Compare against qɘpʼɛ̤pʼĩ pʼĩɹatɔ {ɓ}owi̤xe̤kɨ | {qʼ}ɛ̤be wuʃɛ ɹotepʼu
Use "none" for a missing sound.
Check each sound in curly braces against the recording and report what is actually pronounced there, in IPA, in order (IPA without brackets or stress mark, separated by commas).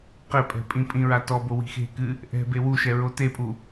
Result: b, ʔ